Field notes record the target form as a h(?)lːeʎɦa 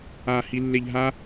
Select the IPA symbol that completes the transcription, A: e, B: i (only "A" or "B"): B